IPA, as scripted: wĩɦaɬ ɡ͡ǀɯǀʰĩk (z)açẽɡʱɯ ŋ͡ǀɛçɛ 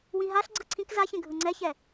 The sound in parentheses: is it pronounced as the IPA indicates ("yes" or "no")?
yes